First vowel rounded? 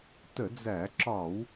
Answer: no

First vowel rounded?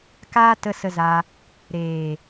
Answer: no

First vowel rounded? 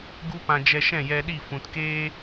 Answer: yes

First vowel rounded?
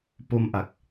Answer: yes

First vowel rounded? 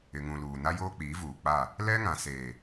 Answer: no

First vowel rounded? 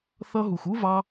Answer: no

